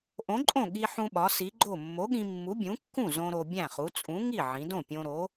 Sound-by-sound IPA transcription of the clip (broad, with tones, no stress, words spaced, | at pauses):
ʔõ˨˥ǃʼõ˥˩ ɠi˧ħũ˧ɓɒ˩˧ si˨˥ɡ͡ǃo˥˩ mːo˨˥ɠĩ˧mːu˨˥ bʲũ˨˥kːũ˥˩zõ˧ ɾo˧bʲæ̃˥˩χu˨˥ t͡sʼũ˨˥ŋi˥˩ʕĩ˩˧dõ˥˩ pʲõ˧ɾo˨˥